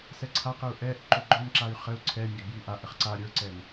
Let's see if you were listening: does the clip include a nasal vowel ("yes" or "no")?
no